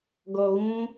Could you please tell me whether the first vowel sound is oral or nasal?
oral